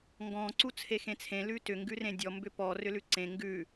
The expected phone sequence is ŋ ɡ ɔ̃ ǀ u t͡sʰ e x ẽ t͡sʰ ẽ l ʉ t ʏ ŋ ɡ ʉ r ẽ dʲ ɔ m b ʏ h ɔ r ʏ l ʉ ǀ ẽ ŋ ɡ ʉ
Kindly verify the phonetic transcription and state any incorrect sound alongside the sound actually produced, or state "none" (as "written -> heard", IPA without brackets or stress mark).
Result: h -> p